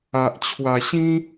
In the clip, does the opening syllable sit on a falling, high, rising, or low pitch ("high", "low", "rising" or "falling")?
low